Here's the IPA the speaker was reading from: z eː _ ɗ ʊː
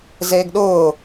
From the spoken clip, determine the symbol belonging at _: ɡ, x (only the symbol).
ɡ